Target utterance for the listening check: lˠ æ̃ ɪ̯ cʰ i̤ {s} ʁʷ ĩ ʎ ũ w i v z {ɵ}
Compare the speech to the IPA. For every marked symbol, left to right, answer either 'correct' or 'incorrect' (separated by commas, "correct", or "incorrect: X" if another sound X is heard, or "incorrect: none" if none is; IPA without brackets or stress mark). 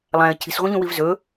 correct, correct